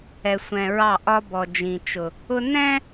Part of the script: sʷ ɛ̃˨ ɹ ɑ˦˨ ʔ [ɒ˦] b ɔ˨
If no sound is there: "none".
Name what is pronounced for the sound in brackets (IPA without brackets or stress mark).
ɒ˦